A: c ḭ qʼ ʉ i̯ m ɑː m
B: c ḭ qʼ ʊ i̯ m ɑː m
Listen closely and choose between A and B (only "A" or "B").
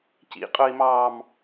B